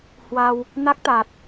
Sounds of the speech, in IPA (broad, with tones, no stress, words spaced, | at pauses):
hwa˧w | na˦˥k̚t̪a˨˩t̚